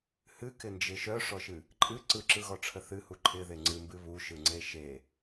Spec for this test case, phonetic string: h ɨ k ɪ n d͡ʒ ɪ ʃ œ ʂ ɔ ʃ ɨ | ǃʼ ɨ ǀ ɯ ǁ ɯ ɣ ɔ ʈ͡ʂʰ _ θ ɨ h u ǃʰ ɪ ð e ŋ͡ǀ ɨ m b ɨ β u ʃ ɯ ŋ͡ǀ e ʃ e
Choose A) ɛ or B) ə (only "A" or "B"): B